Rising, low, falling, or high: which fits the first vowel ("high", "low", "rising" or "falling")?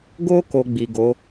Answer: high